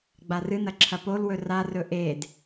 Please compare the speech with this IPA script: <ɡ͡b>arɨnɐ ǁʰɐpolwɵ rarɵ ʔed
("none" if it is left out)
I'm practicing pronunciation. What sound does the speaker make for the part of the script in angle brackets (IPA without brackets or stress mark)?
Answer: ɡ͡b